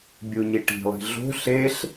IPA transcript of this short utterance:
bʲuɲiʈi̤lˠi̤ ɮo̤ ɬeɬ

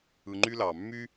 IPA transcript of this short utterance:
ɯ˧ŋ͡ǃy˦lɑ˨ mːy˦

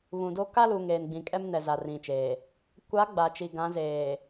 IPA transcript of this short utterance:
βũ˨do˦ ka˦lu˨ ŋeː˨nɡ͡bĩ˨kʼɛ˦mnɛ˨ za˨rĩ˨t͡ʃeː˨ | kʷa˨˦ ɡ͡ba˨t͡ʃi˨ ɡã˨˦ zeː˨

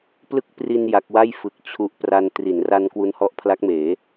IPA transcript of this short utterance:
plɯ˦˥k̚pri˧n ja˦˥k̚ wa˥˩jfɯ˨˩k̚ t͡ɕʰu˦˥ʔpra˧n tri˩˦nra˧n kwu˧nhɔ˦˥ʔpʰla˦˥k̚meː˩˦

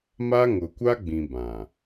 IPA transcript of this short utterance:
ma˦ŋʊ˨kʷa˦ɡ͡bĩ˨ bã˨

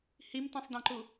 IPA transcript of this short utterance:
himtĩsˤdɐ̃ǃu

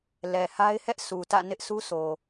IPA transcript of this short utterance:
lɛ˨ha˦ɪ̯hɛ˦ʔ su˨tä̰˦˨nɪ˦ʔ sʰu˦so˨

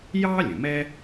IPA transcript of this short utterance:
jɑː˥lʲə̃˩mɛ˥

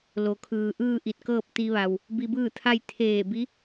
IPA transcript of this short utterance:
lo˩kʰɯː˩ʔɯː˥˨ ʔi˧˩t̚kɤː˥˨p̚ t̪i˧ʋa˩w | bi˧bɯː˥˨t̪ʰa˥˨j t̪ʰeː˧˩bi˧˥

